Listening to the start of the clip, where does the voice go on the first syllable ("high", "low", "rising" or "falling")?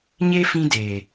high